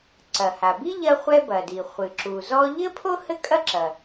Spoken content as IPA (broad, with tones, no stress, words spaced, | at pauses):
ǀɐ˩ha˩bi˥ ʎɐ˥χʷɛ˥bɐ˩di˩ χʷɨ˩ǁu˩zɔ˥ ʎɘ˥pʰo˥ hɘ˥kʼɐ˥ǁɐ˩